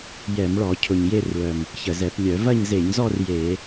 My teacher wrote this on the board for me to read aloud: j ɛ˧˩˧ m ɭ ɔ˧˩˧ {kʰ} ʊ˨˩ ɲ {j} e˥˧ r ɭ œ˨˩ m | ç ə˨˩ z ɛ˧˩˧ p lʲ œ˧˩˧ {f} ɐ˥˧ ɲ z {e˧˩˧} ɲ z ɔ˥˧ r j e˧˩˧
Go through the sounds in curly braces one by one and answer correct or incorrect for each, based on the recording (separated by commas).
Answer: incorrect, correct, incorrect, correct